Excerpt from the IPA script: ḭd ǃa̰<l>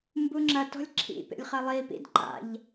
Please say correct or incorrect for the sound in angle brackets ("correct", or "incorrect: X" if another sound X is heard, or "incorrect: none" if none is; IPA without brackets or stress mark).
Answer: incorrect: ʎ